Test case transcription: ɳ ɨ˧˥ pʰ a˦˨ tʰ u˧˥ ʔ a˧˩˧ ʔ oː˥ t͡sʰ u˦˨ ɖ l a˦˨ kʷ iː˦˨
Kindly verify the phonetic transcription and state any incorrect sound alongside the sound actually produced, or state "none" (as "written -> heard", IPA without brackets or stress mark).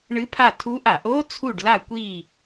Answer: none